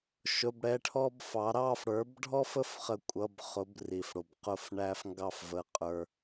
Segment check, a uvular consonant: present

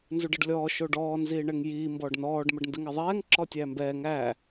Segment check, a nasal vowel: absent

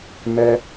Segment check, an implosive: absent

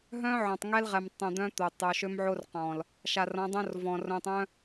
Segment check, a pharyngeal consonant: present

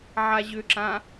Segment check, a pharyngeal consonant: present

